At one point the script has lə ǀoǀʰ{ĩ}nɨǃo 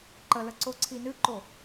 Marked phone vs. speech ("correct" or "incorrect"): incorrect